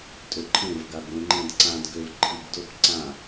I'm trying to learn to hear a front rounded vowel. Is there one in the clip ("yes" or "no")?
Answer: yes